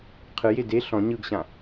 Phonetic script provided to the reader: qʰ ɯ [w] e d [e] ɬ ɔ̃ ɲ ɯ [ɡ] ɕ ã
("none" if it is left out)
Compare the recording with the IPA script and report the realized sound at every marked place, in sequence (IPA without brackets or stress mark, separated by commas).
j, e, ɡ